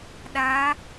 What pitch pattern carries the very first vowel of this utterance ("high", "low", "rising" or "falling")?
rising